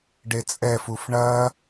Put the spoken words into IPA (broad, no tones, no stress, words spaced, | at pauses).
ɖet͡sʼɛfuf ɳɐ